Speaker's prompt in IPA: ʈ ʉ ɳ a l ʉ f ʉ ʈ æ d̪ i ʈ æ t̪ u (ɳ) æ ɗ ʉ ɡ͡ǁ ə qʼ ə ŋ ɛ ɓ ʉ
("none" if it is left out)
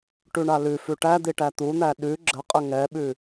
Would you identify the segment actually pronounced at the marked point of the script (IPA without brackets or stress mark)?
n̪